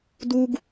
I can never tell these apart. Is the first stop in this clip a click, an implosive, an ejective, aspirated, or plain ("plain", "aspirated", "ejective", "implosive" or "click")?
plain